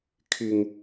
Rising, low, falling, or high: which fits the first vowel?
low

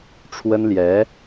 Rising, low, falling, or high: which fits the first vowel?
high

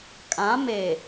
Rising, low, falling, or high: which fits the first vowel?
rising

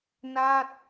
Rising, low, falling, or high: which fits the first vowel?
falling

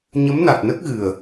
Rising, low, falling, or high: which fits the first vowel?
rising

